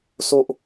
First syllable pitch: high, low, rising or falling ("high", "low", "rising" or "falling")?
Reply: high